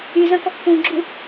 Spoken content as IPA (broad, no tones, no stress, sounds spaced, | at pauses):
y z ɐ̃ k ɔ k p ũ ɡ͡ǁ u